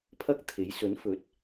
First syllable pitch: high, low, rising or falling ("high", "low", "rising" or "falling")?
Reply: high